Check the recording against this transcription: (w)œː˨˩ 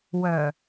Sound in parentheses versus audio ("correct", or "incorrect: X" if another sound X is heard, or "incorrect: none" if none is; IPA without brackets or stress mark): correct